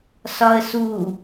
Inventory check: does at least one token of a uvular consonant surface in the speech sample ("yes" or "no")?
no